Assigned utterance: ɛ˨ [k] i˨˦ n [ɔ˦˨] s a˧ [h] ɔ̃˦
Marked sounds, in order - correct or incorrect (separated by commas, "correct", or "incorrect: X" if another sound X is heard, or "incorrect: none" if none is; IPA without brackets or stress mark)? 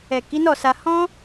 correct, correct, correct